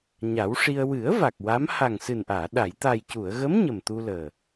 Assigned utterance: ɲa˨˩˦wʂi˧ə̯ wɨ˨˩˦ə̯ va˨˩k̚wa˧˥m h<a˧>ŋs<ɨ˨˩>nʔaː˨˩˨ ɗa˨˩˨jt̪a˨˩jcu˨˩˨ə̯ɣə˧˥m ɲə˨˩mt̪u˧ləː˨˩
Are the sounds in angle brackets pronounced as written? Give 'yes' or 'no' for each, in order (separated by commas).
no, yes